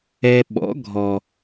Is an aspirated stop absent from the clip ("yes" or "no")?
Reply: yes